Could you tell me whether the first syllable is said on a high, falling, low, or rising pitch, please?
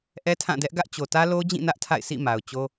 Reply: high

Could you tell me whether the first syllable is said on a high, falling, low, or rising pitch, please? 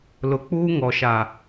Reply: low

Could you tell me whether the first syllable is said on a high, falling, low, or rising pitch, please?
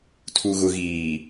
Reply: low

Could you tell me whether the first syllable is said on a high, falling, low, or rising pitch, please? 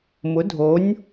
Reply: rising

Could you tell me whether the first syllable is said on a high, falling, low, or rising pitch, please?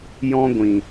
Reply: high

